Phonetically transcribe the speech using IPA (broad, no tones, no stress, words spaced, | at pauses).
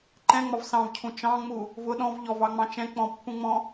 ǃɛ̃ŋ͡mɒv sɑ̃vcʰũ t͡ʃɑ̃ŋ͡mu | vʊ ɗɔ̃v ʎɔvɑŋ͡mɑ̃ t͡ʃɛ̃ k͡pɔ̃pːũŋ͡mɔ̃